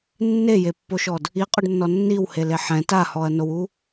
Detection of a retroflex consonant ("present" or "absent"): present